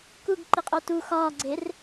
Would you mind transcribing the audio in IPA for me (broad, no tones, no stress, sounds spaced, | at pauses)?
k u ɡ ǃ i qʼ o t u x ɒː ɡ͡ǀ e r